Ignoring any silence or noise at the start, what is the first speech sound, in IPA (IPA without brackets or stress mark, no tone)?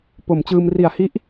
p